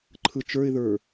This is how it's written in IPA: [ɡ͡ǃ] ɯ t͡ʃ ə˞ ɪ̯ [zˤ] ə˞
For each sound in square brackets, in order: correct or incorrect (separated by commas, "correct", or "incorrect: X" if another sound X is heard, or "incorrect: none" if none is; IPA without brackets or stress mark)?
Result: incorrect: ǃʰ, incorrect: ð